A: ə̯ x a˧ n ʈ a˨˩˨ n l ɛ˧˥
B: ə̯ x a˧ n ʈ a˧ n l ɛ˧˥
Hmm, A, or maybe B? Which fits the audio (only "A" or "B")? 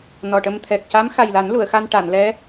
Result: A